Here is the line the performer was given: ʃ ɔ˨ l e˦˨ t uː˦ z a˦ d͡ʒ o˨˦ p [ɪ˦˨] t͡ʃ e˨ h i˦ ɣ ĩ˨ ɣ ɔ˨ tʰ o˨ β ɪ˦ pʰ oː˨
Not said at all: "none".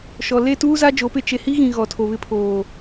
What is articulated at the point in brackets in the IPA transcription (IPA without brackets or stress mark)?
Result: ɪ˦˨